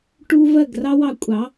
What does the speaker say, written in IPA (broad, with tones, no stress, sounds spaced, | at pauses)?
ʈ u˦ v ɜ˦˨ ɡ r ɑ˦ w ɑ˧ kʷʼ ɑ˨˦